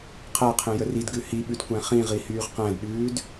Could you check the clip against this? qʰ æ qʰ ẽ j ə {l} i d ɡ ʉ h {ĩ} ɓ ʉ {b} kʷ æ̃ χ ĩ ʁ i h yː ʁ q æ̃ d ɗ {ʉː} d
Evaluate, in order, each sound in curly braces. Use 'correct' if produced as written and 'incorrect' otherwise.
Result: incorrect: r, incorrect: i, incorrect: d, correct

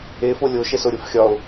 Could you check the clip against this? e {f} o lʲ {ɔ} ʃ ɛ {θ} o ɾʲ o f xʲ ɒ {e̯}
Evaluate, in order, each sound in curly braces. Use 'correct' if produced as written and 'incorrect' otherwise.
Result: correct, incorrect: o, incorrect: s, incorrect: o̯

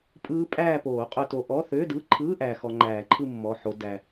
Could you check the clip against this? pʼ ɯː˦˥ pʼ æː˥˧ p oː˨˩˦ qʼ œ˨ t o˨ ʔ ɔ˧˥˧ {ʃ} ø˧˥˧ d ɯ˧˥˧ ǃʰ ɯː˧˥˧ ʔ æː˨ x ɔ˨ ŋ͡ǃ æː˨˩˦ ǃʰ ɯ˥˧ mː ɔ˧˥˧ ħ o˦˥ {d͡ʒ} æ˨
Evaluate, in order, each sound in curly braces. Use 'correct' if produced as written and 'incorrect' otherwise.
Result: incorrect: θ, incorrect: d

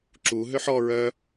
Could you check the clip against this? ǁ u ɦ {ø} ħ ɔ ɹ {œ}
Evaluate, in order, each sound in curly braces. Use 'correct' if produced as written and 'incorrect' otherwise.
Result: correct, correct

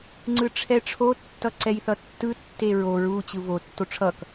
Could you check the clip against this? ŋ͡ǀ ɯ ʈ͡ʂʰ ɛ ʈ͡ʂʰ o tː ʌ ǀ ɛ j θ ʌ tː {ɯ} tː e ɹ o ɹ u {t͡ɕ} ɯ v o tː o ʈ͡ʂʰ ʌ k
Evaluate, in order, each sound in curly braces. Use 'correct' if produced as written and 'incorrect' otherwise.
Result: correct, correct

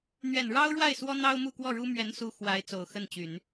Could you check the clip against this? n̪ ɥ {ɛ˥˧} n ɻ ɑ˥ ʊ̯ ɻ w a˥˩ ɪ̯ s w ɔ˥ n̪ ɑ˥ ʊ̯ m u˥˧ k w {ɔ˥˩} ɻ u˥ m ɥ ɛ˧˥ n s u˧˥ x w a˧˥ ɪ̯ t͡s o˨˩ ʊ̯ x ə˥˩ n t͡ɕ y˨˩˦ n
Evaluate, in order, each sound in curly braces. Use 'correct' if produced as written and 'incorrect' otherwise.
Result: incorrect: ɛ˨˩, correct

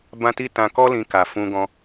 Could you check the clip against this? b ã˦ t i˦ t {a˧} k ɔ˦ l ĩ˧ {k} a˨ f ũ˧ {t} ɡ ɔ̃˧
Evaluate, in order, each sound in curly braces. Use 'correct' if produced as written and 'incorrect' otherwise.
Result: incorrect: ã˧, correct, incorrect: none

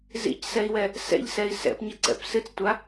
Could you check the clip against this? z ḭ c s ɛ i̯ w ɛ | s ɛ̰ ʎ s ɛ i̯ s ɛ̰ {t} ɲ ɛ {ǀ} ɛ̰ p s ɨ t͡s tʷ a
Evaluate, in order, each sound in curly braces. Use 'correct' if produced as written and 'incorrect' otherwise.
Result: incorrect: p, correct

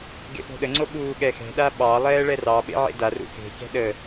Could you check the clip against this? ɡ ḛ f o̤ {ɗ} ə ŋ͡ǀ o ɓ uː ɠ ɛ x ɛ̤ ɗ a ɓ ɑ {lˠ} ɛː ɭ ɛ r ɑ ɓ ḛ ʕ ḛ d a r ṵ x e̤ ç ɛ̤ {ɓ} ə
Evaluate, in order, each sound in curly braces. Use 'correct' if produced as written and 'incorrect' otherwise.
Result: correct, correct, incorrect: ɗ

